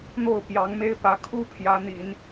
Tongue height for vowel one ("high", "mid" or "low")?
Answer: mid